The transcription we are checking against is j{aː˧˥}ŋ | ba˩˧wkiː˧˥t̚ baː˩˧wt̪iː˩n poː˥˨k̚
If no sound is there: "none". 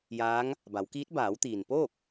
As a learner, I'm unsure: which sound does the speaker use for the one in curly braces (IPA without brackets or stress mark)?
aː˧˥